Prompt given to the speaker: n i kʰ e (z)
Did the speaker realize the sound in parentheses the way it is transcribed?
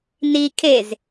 yes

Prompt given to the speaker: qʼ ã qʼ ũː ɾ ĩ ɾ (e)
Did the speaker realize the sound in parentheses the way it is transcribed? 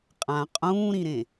no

